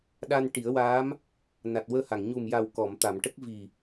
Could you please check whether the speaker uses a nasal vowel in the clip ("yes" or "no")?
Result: no